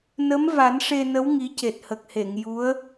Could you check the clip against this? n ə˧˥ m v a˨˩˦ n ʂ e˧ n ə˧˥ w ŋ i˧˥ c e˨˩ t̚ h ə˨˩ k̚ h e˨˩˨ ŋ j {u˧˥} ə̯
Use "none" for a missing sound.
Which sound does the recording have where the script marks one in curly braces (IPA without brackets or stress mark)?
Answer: u˧˥